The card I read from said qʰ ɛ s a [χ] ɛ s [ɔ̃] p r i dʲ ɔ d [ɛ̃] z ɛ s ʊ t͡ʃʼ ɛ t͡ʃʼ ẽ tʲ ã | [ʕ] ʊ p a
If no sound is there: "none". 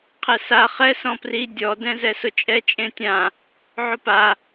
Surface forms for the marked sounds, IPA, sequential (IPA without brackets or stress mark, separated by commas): χ, ɔ̃, ɛ̃, ʕ